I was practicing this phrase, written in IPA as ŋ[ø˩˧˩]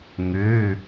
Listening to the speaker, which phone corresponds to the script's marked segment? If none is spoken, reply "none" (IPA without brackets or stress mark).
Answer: ø˩˧˩